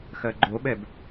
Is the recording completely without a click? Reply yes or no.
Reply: no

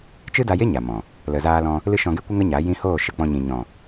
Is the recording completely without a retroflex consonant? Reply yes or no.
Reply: yes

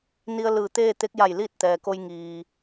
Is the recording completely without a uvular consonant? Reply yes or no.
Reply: yes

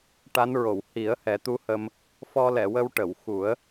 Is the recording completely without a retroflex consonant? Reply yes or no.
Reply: no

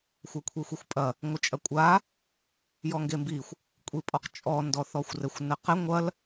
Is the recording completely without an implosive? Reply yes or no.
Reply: yes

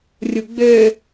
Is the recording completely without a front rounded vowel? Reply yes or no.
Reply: no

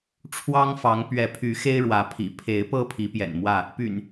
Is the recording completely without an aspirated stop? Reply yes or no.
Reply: no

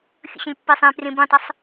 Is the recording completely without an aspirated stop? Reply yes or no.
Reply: yes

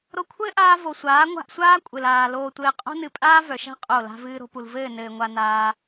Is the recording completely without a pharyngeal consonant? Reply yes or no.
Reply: yes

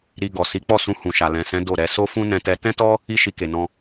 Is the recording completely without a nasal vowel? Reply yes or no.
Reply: no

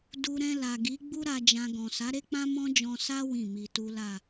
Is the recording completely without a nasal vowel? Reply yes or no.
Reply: no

